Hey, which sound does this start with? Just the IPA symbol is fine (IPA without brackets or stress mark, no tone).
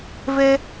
v